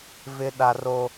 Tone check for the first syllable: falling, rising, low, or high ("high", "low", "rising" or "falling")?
high